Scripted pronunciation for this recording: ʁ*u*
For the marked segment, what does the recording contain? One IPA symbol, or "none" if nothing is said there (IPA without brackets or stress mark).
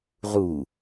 u